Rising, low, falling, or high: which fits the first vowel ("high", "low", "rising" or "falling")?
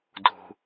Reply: high